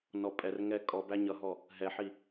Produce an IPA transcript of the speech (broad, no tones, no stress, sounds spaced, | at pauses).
n ɔ pʼ ɛ r ŋ ɛ kʼ ɔ b æ ɲ ʌ ɦ ɔ | ɦ ɛ ħ i